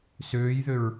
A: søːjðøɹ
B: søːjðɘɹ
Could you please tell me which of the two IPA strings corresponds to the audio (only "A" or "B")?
A